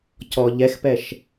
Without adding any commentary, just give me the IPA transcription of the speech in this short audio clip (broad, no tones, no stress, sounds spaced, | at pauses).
c ɔ ʎ ɛ x p ɛ ʃ